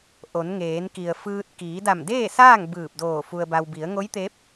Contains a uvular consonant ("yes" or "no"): no